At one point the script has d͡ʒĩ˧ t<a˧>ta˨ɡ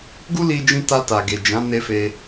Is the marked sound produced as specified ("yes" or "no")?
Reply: yes